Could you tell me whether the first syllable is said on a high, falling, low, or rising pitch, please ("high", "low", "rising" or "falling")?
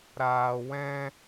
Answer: low